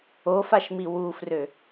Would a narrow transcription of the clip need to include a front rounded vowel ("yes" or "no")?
yes